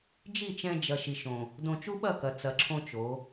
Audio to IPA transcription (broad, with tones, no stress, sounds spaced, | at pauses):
d͡ʒ i˦˨ t͡ʃ ɛ̃˧ d͡ʒ ɐ˨ ʃ i˨ ʃ õ˨ | d õ˧ t͡ʃ u˦ ɓ ɐ˦˨ k ɐ˨ t͡s ɐ˨ ǁʰ õ˧ t͡ʃ o˨˦